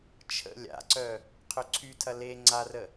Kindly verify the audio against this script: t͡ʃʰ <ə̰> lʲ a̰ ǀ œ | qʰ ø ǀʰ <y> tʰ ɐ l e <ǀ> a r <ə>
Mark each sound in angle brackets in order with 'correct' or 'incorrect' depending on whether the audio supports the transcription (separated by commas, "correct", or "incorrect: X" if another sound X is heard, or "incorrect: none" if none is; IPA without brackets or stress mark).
correct, correct, incorrect: ŋ͡ǀ, correct